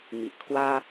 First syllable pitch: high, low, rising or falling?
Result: low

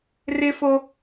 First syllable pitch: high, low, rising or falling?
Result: high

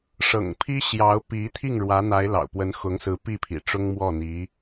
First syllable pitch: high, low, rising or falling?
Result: low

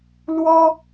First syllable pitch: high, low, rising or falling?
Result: high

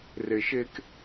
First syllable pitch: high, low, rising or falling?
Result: low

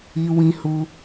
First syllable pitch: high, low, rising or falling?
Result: high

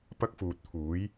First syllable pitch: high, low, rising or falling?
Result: high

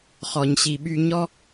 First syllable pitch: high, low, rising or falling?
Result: low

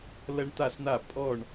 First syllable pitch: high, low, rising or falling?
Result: high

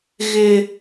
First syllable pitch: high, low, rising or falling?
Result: high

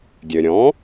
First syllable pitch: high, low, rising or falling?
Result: low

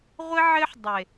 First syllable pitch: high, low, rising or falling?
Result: high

